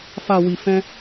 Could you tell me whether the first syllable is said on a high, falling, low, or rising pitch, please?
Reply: low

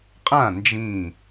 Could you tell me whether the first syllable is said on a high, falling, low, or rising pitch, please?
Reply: falling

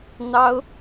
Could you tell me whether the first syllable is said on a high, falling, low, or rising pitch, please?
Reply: high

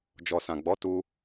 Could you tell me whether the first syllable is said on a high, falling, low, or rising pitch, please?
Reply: low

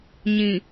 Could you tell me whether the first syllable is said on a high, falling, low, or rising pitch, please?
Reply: low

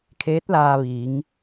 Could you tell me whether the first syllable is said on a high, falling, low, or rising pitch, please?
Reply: rising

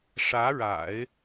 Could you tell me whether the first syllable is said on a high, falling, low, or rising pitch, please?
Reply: rising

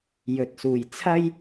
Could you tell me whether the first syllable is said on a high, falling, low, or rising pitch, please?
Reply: low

